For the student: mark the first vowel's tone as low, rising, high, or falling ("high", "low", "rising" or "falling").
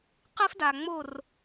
high